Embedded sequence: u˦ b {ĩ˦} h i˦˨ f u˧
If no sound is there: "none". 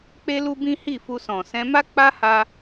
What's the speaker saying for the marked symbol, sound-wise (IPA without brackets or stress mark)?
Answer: ĩ˦